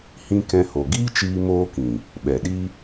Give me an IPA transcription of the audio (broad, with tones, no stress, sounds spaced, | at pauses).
h ĩ˧ k ɛ̃˧ h o˨ ɡ iː˦ t͡ʃ iː˧ m oː˦ k ĩ˨ | ɓ ɛ˨ ɗ i˦